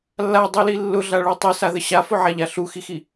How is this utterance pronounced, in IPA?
lː a dˤ u l i lː ʊ ɮ a ɭ u tˤ u s a ð ə ɕ a f ʊ ʕ a ʎ a ɬ u x i x i

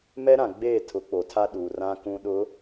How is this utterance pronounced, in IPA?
m ɛ˦ ɾ ã˨ ɡ͡b eː˦˨ tʰ ʊ˨˦ k͡p o˨ tʰ a˦ ɗ u˨ r ã˦ k ũ˦ ɗ ʊ˨˦

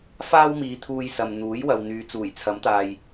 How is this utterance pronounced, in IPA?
f aː˥ w m iː˨˧ t̪ʰ uː˧ j s ɐ˨ m n̪ uː˨˥ j w ɐ˨ w n̪ yː˨˧ t͡s uː˨˩ j t͡sʰ ɐ˨˥ m t̪ aː˨ j

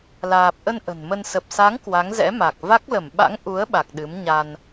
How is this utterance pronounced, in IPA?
l aː˨˩ p̚ ʔ ə˧ n ʔ ə̤˨˩ n m ə˧ n s ə˨˩ p̚ s a˨˦ ŋ k w a˨˦ ŋ z ɛ̰˧˥ m a˨˩ k̚ v a˦˥ k̚ l ə˧˩ m ɓ a̰˧˥ ŋ ʔ u˨˦ ə̯ ɓ a˨˩ k̚ ɗ ɨ˨˦ m ɲ a˧ n

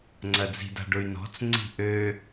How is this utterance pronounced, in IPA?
ŋ͡ǀ ɐ d͡z i̤ d a̤ ɖ ʊ y̯ n ɔ̤ t͡s ŋ͡ǀ i̤ ʔ ø

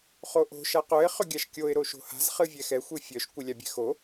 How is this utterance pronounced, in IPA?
χ o ʔ o̤ ʃ a q œ ɪ̯ χ ʏ ɡʲ a ʃ kʲ o ɪ̯ ɾ o ʃ o̤ h a̤ z χ ɨ vʲ ɛ x ɛ xʷ ɨ fʲ œ ʃ kʷ ɨ lʲ a bʲ ɛ̤ x o

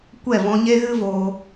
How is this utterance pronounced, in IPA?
kʷ ɛ˦˨ v ɔ̃˧ ɲ e˦ ɣ ɨ˦ v oː˧

